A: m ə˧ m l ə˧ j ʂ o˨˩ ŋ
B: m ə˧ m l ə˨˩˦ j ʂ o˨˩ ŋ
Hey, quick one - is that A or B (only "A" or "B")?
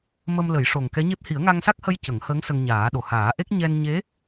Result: B